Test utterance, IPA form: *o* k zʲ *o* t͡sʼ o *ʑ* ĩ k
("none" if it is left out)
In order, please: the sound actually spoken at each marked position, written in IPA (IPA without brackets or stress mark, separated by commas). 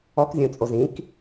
ɔ, õ, z